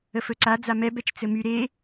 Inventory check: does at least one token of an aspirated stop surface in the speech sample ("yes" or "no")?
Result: no